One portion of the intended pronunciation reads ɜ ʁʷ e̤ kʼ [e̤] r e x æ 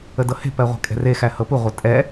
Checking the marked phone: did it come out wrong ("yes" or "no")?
yes